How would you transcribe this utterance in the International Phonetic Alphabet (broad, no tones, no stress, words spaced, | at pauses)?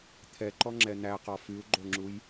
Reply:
t̪ʰɛǃɔŋ͡ǁɛ n̪æqɔ fyu̯ɡ͡ǃoŋ͡ǁuj